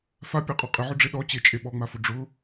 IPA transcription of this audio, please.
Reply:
f a pʲ a qʼ ɔ qʼ ɪ ʕ ʊ ɖ͡ʐ e ɗ ɔ t͡ɕ e t͡ʃʼ e ɓ ɔ ŋ͡m a f ʊ ɖ͡ʐ ʊ

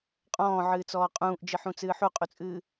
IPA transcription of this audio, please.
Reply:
qʼ ɔ̃ː ʕ ɨː t͡s ɔː qʼ ũː ʔ d͡ʒ ɨ ħ ũ t͡s ɨː ħ u qʼ u t͡sʼ ɨː

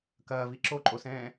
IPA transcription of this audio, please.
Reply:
k ɐː v i ǁ o ǃʼ o s ɛ̃ː

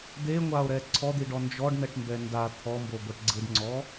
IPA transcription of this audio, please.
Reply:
d̪ e ŋʷ a o̯ ɾ ɛ ǀʰ ɔ d̪ i ɖ ɔ n d͡ʒ ɔ ɖ n ɛ ʈ m b ɛ n d a t̪ʰ ɔ m b o ɡʷ ɛ ʈ ɡ͡ǀ ɯ ɖ ŋ͡ǀ ɔ

